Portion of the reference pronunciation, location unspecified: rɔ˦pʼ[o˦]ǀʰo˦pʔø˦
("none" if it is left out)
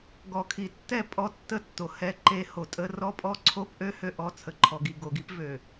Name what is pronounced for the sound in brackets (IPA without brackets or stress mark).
ɔ˦